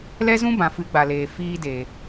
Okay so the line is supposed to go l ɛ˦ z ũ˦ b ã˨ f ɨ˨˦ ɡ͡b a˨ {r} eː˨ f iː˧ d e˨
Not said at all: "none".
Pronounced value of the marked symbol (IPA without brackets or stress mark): l